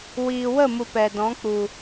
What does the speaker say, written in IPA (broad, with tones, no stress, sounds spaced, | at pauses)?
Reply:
w iː˨ w ə˦˨ m u˨ p ɛ˨ d ɔ̃˨˦ k͡p u˨